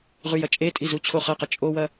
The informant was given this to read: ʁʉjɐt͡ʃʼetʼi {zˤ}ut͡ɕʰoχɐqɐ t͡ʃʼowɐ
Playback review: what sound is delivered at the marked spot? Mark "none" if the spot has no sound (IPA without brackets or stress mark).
z